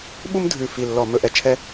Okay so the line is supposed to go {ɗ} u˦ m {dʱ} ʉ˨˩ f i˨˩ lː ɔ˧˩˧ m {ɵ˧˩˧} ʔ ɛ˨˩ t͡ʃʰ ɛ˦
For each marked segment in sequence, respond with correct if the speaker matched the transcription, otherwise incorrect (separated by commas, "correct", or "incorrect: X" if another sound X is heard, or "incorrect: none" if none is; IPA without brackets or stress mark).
incorrect: ɓ, correct, correct